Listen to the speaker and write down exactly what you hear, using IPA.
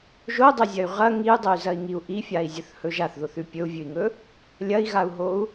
ʒodˤozʲɐy̯ ʁɐ ŋiu̯dˤoy̯zɐi̯ŋiu̯ ʔifʲai̯zʲɵθhɵ ʒaθðoθʉ pʲɵu̯vʲʉi̯ŋɵ | lʲɐi̯ɣau̯ɦou̯

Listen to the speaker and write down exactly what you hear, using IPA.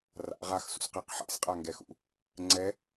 ra̰ ʁaxsṵsqɛq ħa̰sqʼaŋɡɛxṵ | ŋ͡ǀɛ

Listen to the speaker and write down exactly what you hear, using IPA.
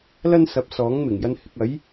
lɐ˥n sɐ˧p̚ sɔː˨˥ŋmɪ˨˩ŋjɐ˧n hɪ˨k̚ɐ˨˥j

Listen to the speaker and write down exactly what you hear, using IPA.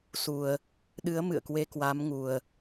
su˨˩ə̯ | ɗɨ˨˦ə̯ mɨ̰˧˨ə̯kwe˧ kwa˨˦mŋu˨˩ə̯

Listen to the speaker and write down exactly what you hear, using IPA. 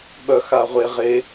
ɓœxaʁʷeʁe

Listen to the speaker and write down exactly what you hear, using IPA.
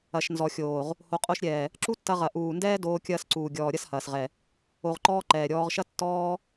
ɐ˨ʃnzɔ˨xʲoː˨ʁ | ho˨qʼo˧ʃɾʲɛː˨ | ǁu˦tːɐ˧ʁɐ˨ ʔuː˨ndɛː˦doː˧ kʲɐː˧sǀuː˨ɡʲɔː˨ ɾʲɐ˦shɐː˨sʁɛ˨ | o˧ʁǃɔː˦ ǃɛː˨ɾʲɔː˧ʁʃɐ˦ tːɔː˦

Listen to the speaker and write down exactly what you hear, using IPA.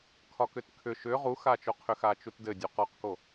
kʰɒkʏtkʰʏ ʃʏ ʁuxat͡ʃoqʰʏ xat͡ʃutdɘdʲu qɒqko

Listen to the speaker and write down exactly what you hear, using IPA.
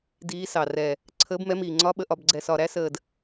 diː˨˦sɑ˨˩ rɛː˨˩ | ǀʰəː˨˦bmɛ˨˦miː˨˩ ŋ͡ǀɒ˨˦ɓə˨˩ʔɒ˨˩bɡ͡ǀɛ˨˩s ɒ˨˩ɾæ˨˦səː˨˩d

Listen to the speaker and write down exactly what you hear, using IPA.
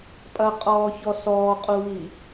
pʼɐqʼɔːçɔ sɔːqʼuβi

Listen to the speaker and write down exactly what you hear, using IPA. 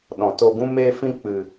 ɗɔ̃˧t o˧ɡũ˦meː˦fĩ˦ k͡pɨ˧

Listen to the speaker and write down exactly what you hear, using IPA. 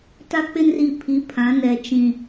ta˦k͡pɪ˦nri˨pʰi˨˦ pʰã˨˦nɛ˨ t͡ʃĩ˨

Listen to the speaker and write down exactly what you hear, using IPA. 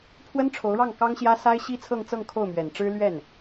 pʰwə˥nʈ͡ʂʰo˧˥ʊ̯ɻɑ˥˩ŋ kɑ˥ŋɕjä˥ sa˥ɪ̯ɕi˥t͡sʰɤ˥˧ŋ t͡sɤ˥˧ŋkʰo˥˩ʊ̯mɥɛ˨˩nʈ͡ʂɻ̩˥ lɥɛ˥˩n

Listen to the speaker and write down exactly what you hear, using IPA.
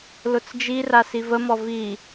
lʊt͡sd͡ʒira sivəmɔ vi

